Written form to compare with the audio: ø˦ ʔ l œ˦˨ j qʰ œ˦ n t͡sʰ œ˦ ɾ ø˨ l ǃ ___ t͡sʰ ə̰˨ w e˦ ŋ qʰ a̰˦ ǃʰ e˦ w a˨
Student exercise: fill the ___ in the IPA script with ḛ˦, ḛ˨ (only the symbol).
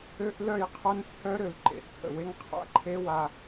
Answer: ḛ˨